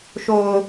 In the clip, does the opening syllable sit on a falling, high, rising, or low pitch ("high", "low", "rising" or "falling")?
low